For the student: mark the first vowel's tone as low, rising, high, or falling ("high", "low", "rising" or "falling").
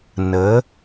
rising